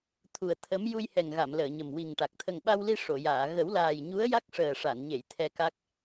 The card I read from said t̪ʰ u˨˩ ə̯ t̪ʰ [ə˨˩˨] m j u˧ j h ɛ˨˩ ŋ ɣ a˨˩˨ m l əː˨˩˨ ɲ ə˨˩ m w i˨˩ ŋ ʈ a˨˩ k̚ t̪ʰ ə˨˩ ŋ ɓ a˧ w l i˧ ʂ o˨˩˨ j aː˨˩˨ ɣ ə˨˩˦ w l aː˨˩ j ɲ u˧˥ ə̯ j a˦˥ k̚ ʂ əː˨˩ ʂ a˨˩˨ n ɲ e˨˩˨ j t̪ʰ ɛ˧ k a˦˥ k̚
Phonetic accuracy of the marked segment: incorrect: ə˧˥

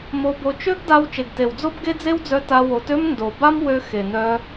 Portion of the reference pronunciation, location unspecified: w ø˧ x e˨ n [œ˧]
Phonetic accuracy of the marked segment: correct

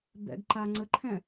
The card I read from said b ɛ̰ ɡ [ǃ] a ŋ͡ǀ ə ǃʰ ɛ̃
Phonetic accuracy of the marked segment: correct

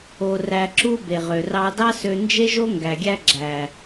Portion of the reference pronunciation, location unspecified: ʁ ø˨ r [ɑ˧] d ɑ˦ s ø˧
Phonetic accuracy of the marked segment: correct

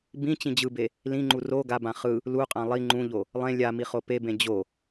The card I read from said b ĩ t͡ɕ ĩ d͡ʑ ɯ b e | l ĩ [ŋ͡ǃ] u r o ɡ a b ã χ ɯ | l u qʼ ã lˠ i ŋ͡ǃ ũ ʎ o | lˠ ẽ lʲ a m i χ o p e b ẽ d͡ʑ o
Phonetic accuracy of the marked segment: correct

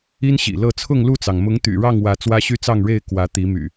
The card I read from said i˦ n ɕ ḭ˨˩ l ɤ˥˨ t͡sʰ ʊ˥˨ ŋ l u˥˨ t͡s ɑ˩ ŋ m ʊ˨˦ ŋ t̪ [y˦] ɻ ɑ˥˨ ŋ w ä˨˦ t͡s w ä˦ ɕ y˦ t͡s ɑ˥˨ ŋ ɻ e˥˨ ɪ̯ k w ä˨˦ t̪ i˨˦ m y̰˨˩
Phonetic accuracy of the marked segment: incorrect: y̰˨˩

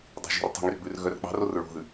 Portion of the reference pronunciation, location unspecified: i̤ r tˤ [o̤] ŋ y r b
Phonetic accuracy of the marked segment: correct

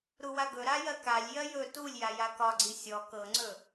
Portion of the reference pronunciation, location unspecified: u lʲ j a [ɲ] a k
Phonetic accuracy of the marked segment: incorrect: j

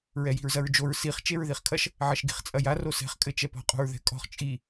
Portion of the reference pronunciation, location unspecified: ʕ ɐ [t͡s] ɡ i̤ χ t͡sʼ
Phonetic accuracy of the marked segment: incorrect: ʃ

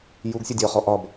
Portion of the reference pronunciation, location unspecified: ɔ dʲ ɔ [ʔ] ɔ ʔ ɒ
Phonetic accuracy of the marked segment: incorrect: χ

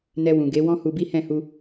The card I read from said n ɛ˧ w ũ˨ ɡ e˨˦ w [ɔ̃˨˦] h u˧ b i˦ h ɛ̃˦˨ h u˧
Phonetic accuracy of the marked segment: incorrect: ɔ̃˦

